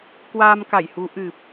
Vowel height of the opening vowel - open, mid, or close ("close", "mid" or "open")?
open